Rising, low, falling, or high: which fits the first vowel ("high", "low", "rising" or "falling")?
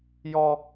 high